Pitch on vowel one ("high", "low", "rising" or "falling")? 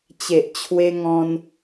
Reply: low